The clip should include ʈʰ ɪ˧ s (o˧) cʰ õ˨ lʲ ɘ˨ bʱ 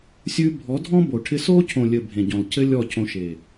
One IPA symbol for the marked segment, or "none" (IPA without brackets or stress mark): o˦